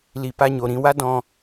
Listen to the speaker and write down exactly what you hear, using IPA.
l i˨ p a˧ ɲ o˨ ɾ ĩ˧ w a˦ d ɔ̃˧

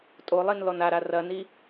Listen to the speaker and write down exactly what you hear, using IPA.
tʼ o lˠ i n l ɔ n a ɾ a r ɐ n i

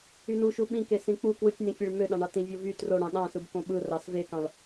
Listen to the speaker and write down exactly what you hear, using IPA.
y n u ʃ u ɓ ĩ k e s ĩ k͡p u k w ɯ tʲ n ĩ fʲ e ɭ m ø ɗ ɑ̃ ɳ ɑ t ĩ vʲ o v y t r o ɽ ɑ̃ ɗ ɑ̃ s ɯ b k õ ɓ ɯ r ɑ s v e k ɑ̃ ɭ

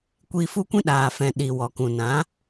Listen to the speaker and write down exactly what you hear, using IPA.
kʷ iː˧ f u˦ kʷ ĩ˦ ɗ aː˨ f ɛ̃˨ ɗ i˨ w ɔ˨ k ũ˨ n ã˨˦

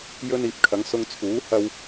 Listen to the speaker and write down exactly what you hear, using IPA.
j ɵ˧ n iː˨ p̚ kʰ ɐ˨˧ ŋ s ʊ˧ ŋ t͡sʰ uː˨˥ h ɐ˥ w

